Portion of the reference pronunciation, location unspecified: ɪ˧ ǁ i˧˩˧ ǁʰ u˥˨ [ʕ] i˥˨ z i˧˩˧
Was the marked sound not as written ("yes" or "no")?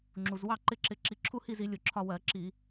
yes